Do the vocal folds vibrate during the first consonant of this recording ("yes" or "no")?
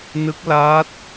yes